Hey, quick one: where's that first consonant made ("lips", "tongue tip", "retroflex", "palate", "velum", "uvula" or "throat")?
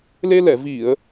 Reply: tongue tip